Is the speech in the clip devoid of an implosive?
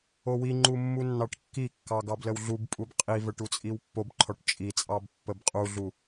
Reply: yes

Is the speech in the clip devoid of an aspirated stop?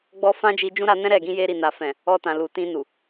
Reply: yes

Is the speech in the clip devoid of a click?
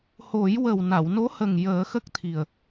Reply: yes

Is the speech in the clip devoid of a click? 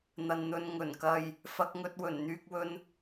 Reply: yes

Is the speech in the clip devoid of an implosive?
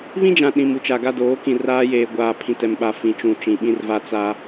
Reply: no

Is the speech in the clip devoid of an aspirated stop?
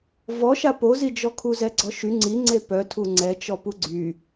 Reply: no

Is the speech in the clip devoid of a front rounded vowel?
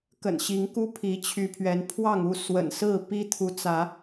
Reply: no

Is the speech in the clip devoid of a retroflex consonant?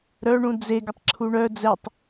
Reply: no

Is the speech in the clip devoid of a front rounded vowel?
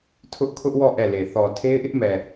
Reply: yes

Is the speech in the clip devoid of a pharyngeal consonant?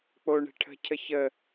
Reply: yes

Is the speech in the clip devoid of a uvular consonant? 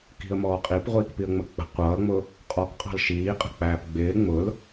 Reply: no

